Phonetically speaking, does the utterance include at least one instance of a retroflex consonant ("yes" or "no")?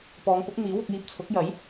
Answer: no